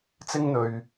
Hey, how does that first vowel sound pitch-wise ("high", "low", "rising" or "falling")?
high